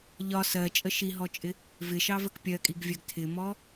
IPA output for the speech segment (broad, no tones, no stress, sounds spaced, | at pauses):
ʎ ɒ s ɜ t͡ʃʼ ə ʃ i ɦ ɔ t͡ʃʼ ɪ | v ɪ ʃ ɑ v ə k pʲ ɜ kʼ i ɡ vʲ ɜ ɡ tʰ ɪ m ɔ